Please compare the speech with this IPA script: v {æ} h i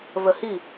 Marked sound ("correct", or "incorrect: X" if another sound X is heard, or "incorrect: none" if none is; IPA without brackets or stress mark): incorrect: ə